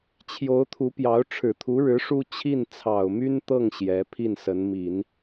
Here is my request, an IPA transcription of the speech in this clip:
t͡ɕʰ j o˧˥ ʊ̯ t̪ʰ u˧˥ p j ɑ˧˥ ʊ̯ ʈ͡ʂʰ ɻ̩˨˩ t̪ʰ u˧˥ ɻ ɻ̩˧˥ ʂ u˥ t͡ɕʰ i˥˩ n t͡sʰ ɑ˨˩ ʊ̯ m y˥ n t̪ ɤ˥˩ ŋ ɕ j ɛ˧˥ pʰ i˥˩ n s ə˧˥ n m i˨˩˦ n

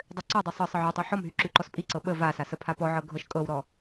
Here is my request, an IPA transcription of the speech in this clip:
dˤ ø ǀ ɔ dˤ y sˤ ɤ sˤ ə ʕ ɔ tˤ y ħ ɔ m ɦ y ǁ y ǃ ɔ s pʼ i ǀ ɤ ɓ ə v a s a s ə pʰ a p ɔ ʕ ɤ ɡʱ ɤ ʃ kʼ ɤ w ɾ ɔ

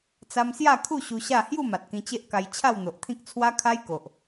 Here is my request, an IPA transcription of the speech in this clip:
t͡s a˦ m s j a˥˧ kʰ u˥˧ ɕ u˧ ɕ a˥˧ h j u˥˧ m a˨ t̚ k ĩ˧ t͡ɕ e˦ ʔ k a˧ j t͡ɕʰ a˥˧ w n̪ o˨ ʔ t̪ʰ ĩ˦ k̚ t͡sʰ w a˦ kʰ a˦ j k o˨ ʔ

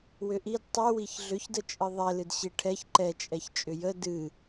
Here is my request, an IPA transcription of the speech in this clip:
w ʏ ʔ i d tˤ ɨ w i ç ɮ ʏ ç d ə t͡ʃʼ ɨ ðˤ ɛ l ɨ d ɕ i ʈʰ ɛ ç ǃ ɛ t͡ʃʼ ɛ ç t͡ʃʼ ʏ j ə d ɨ

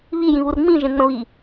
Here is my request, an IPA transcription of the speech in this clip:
β i j ĩ β u r ŋ͡m ĩ ʒ ẽ ŋ͡m ə̃ β i

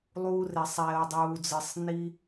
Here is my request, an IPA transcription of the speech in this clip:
lˠ uː˧ r e˨ sˤ ɛː˨ o̯ dˤ uː˨ d͡z ɯ˨ sˤ n i˦

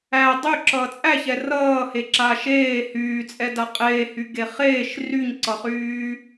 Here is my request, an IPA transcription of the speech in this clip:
æ dˤ y ǁ ʌ t͡sʼ æ ç ɛ r ʌː h e ǁ a ʃ eː h yː t͡sʼ ɛ d a qʼ eː h y ɡ e χ eː ʃ r y ɲ ǀ ʌ χ yː

